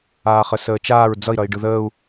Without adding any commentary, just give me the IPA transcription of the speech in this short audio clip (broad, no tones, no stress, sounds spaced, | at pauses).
aː χ ə s əː t͡ʃ aː ɹ d͡z ʌ i̯ ɾ ʌ i̯ ɖ ɯ ð əː u̯